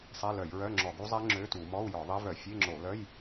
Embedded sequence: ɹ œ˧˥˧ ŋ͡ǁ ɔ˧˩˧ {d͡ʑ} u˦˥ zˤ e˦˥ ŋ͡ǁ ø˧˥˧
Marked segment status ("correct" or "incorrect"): incorrect